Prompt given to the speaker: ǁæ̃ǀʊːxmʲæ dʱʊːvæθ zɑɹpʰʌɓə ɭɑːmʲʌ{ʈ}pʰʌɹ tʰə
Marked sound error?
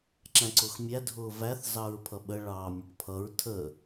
no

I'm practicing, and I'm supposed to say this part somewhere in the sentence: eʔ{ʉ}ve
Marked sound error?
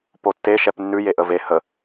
yes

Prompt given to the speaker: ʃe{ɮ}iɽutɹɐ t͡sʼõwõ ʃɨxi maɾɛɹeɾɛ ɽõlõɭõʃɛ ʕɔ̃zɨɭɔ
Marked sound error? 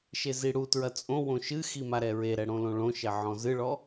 yes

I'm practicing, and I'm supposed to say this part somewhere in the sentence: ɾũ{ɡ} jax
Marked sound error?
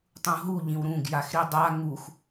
no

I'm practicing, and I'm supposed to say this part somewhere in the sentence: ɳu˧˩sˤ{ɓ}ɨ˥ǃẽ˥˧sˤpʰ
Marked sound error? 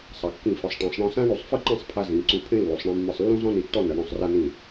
yes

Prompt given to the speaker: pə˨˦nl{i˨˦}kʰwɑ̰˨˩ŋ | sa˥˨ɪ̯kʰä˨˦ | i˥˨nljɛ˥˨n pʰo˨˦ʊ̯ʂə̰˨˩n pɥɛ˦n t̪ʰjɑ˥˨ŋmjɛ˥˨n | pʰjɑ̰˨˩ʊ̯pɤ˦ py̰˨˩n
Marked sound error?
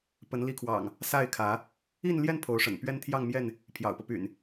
no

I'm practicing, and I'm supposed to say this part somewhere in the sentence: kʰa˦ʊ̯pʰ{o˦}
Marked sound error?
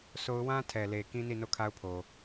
yes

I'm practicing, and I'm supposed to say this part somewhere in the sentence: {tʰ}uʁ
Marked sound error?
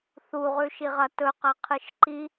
yes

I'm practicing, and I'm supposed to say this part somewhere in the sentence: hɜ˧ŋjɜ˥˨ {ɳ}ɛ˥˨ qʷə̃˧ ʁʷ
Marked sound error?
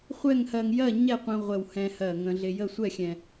yes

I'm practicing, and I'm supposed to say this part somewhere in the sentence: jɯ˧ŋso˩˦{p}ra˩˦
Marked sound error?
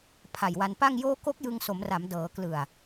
yes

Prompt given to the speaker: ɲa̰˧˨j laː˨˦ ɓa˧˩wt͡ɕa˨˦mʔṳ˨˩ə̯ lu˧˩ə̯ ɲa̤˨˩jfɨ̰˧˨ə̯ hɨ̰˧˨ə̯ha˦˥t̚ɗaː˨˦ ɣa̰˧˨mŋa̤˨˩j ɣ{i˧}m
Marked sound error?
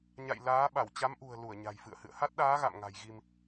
no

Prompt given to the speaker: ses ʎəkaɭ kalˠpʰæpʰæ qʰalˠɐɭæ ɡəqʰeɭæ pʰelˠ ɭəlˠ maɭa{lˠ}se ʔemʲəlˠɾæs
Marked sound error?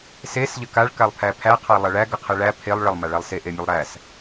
no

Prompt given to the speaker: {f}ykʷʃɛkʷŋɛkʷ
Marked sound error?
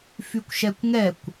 no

